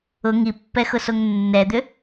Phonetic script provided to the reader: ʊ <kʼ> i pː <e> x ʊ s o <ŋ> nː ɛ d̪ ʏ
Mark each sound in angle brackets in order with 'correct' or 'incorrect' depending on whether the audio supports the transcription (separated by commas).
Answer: incorrect, incorrect, correct